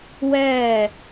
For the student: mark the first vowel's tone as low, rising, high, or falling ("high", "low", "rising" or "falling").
falling